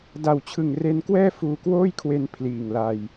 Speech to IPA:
d a˨˩ w t͡ɕʰ ɯ˨˩ ŋ r e˧ n k w ɛː˥˩ f uː˧ k w oː˥˩ j kʰ w e˧ n pʰ l iː˨˩ ŋ l a˧ j

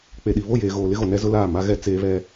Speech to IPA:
k͡p e˨ ɗ i˨ β o˦˨ j eː˨ ɣ oː˨ l ɪ˦ ɣ o˨ n ɛ˦ z ʊ˦ l aː˦˨ m a˦ ɣ ɛ˦ t͡s eː˦ β ɛ˦

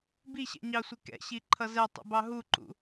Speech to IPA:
b i ɕ ɛ̰ ɲ ɑ sʷ ɪ k ɛ̰ ɕ i ǃʰ ʌ z ɛ tˤ ṵ b ɑ ɦ u ǃ ṵ

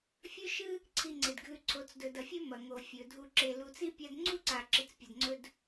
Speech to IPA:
fʲ ɵ˥ ʃ ɨ˥ | ǀʰ i˨ ŋ͡ǀ e˩ d ɡʱ ʉ˨ ǀʰ o˨ t͡s d ɵ˨ d ɐ˨ fʲ ɵ˦ m ɐ˩ ŋ o˩ fʲ ɵ˩ dʱ u˨ ǁ e˨ l u˨ t͡s i˥ pʲ a˦ d ŋ͡ǀ u˥ ǀ a˨ ǁ i˨ t͡s pʲ ɐ˨ d ŋ͡ǀ ɵ˦ d

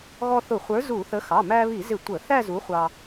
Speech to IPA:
ɣ ɔ˧ θ ʊ˧˩˧ χʷ ə˞˨˥ z u˧˩˧ θ ə˨˥ x ɑ˩˧˩ m æ˧ β i˧˩˧ z ɪ˧˩˧ tʷ ə˧˩˧ θ æ˥˧ z u˨˥ χʷ ɑ˧

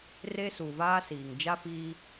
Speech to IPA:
r e˦ s u˨ v aː˦ s iː˨ ŋ d͡ʒ a˦ f iː˦

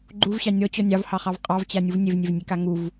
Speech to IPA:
ɡ͡ǃ u v ɕ ɑ nʲ ɔ t͡ɕ ɔ nʲ ɑ v h ɑ χ ɑ v qʼ ɑ v t͡ɕ a nʲ u v nʲ e v nʲ e v nʲ e k a ŋ u v

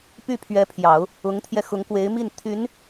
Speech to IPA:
p y˥˩ pʰ ɥ ɛ˧˥ pʰ j ɑ˨˩˦ ʊ̯ | ʊ˧˥ ŋ t̪ʰ j ɛ˧ x ʊ˧˥ ŋ k w e˧˥ ɪ̯ m i˥˩ n t̪ʰ y˧˥ n

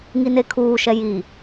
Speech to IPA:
ŋ i n e kʰ uː ʃ ɛ j i

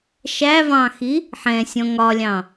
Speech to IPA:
ʃ æ v ɑ̃ x i | ħ ɛ̃ sʲ ɔ̃ ŋ ɒ lʲ ɑ̃

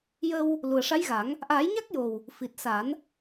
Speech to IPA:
j ə˧ w | l u˨˩ ə̯ ʂ a˧˥ j ɣ a˨˩˦ ŋ | ʔ aː˨˩˦ j ɲ a˦˥ k̚ j o˨˩ w | f i˨˩ t̚ s a˨˩˦ n

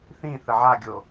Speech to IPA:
θ ĩ θ ə ʕ a ɡʲ o

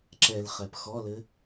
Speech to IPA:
ǁ ɛ l χ ɛ p x ɔ l ɘ

